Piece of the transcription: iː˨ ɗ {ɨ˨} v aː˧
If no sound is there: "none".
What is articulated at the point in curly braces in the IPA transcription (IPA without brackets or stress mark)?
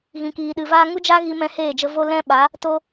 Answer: ɨ˨